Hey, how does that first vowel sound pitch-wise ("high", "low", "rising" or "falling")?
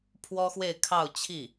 high